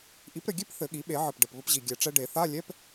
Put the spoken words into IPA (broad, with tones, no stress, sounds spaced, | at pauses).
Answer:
ʔ i˩˥ p ɾ ɘ˨˩ ɡʲ e˥˧ p θ ɘ˨˩˦ ɠ i˩˥ ɓ e˨˩˦ ʕ ɘ˨˩ p ɖ ɘ˨˩ p β ɘ˧ p ʑ i˨˩ ɡʲ ɛ˨˩ ʈ͡ʂ ɛ˧ ɖ e˨˩˦ θ a˧˥˧ lʲ ɛ˧˥˧ p